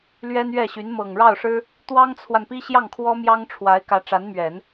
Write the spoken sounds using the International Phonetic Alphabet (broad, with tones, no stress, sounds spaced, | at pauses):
l ɥ ɛ˥ n ɥ ɛ˥˩ ɕ y˧˥ n m ɤ˨˩ ŋ ɻ ɑ˥˩ ʊ̯ ʂ ɻ̩˥ | t̪ w ɑ˥ ŋ t͡sʰ w a˨ n p i˥ ɕ j ɑ˥˩ ŋ kʰ w ɔ˥ m j ɑ˥ ŋ ʈ͡ʂʰ w a˧˥ ɪ̯ k ä˧˥ ʈ͡ʂ a˧˥ n m ɥ ɛ˨˩˦ n